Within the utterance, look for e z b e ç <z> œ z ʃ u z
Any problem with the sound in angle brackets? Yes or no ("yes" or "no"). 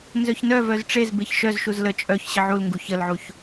yes